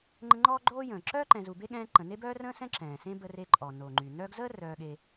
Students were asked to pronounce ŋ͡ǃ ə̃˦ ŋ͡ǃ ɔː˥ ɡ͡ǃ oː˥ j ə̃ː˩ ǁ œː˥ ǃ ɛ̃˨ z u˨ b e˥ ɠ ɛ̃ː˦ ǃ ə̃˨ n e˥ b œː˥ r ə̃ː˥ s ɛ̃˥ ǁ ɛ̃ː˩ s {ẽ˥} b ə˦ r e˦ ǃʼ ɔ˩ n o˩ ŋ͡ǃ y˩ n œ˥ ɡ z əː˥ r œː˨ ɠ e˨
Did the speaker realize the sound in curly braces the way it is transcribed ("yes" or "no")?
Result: yes